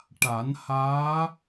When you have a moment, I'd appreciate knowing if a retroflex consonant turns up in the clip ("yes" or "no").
yes